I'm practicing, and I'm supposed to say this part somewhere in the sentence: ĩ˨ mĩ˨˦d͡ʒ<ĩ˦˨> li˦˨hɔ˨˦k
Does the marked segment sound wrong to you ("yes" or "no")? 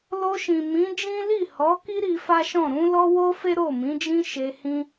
yes